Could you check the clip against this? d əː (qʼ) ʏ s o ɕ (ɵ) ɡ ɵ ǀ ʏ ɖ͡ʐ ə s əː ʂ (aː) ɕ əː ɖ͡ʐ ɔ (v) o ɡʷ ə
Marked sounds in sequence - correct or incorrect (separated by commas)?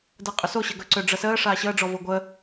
correct, incorrect, correct, correct